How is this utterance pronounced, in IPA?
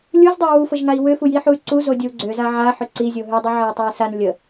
lʲ u z dˤ ə u̯ w u f ə ʒ ŋ a i̯ w ʏ f u j i ħ u y̯ ǀ u z o dʲ o u̯ ɡ͡ǀ ø z a ʕ a ħ ʏ ǀ i zʲ o ɦ ʏ dˤ u ʕ e j tˤ a i̯ s a n lʲ ə

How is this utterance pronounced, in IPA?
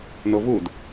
n o v u d

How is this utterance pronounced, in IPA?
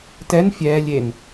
t ɛ n fʲ ɛː lʲ e n

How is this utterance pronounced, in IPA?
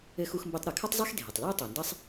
ɘ˧ x u˧ x m b e˧ tˤ ɾ u˩ kʰ ɐ˥ tˤ zˤ ɛ˥ x dʱ e˩ tˤ l ɛ˥ o̯ tˤ e˩ n d ɐ˥ sˤ

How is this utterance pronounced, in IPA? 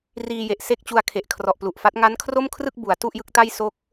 r iː˧ j e˨˩ ʔ s e˥˩ k̚ t͡ɕ u˧ a̯ kʰ e˨˩ ʔ kʰ r ɔ˨˩ ʔ p l u˨˩ ʔ f a˦˥ t̚ ŋ a˦˥ n kʰ r o˥˩ m kʰ r ɯ˥˩ k̚ b u˩˦ a̯ t u˥˩ ʔ j ɯ˦˥ k̚ t a˥˩ j s o˦˥ k̚

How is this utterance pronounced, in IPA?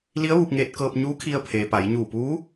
l i˧˥ ə̯ ʋ u˧ p̚ ŋ eː˧ t̚ k ɤː˧ p̚ ɲ uː˧˥ kʰ i˧ ə̯ pʰ eː˩ p a˩˧ j ɲ uː˧˩ p uː˧˥

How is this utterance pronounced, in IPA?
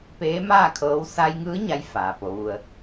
p eː˧˥ m aː˥˨ kʰ ɤː˧˥ w s a˧ j ŋ ɯː˧˥ ɲ a˧˥ j f aː˩ p o˩˧ ʋ u˧ ə̯

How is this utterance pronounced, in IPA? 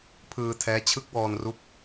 pʰ ɯː˧ tʰ ɛː˦˥ t͡ɕʰ ɯ˦˥ k̚ w ɔː˧ n r u˦˥ k̚

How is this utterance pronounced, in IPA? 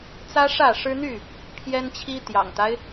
t͡s ä˦ ʂ ä˥˨ ʂ ɻ̩˦ n̪ y˥˨ | pʰ j ɛ˦ n t͡ɕʰ i˦ t̪ j ɑ̰˨˩ ŋ t̪ a˦ ɪ̯

